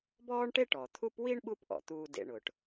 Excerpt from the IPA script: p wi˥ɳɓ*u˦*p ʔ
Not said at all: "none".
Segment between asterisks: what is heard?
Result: u˦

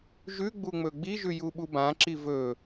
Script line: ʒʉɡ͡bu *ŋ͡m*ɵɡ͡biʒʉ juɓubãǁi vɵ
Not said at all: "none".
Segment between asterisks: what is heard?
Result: ŋ͡m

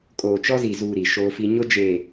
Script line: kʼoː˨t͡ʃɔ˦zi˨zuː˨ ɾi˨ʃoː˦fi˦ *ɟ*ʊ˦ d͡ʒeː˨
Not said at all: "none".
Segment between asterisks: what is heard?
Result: ɲ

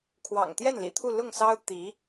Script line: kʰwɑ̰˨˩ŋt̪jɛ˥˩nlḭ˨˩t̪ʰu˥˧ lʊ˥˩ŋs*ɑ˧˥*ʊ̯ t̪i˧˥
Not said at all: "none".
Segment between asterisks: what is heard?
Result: ɑ˥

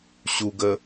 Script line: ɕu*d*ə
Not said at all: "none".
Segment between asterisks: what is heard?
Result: ɡ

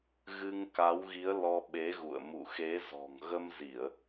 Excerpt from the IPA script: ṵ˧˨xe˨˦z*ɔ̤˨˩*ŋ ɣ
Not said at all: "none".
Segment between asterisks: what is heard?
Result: ɔ̤˨˩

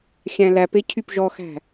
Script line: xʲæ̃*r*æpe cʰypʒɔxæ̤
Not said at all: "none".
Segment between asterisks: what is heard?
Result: l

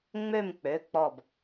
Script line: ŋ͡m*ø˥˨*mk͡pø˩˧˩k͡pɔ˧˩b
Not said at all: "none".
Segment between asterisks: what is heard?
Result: ø˥˨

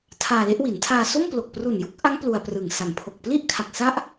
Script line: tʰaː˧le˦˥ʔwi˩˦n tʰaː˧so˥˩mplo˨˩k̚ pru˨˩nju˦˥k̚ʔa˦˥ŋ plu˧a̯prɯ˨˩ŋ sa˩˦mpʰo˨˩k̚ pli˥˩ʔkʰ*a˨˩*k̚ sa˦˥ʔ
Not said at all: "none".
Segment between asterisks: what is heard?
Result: a˨˩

